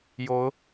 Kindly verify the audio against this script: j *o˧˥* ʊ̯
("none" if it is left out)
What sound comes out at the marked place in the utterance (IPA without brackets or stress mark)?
o˧˥